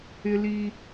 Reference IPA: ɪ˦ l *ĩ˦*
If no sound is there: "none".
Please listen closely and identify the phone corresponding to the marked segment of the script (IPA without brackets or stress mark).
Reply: i˦